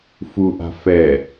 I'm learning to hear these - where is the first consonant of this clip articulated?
lips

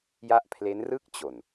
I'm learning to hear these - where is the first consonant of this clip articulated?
palate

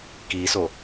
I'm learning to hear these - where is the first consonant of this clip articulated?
velum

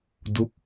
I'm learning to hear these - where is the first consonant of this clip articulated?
tongue tip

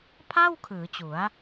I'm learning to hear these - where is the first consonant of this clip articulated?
lips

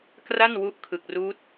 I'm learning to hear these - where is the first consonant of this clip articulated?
velum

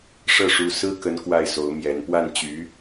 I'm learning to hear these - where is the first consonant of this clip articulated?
retroflex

